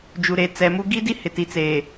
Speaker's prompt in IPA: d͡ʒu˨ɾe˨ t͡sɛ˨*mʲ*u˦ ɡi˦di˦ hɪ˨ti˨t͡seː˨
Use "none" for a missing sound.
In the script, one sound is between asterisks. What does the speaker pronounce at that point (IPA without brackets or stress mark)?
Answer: m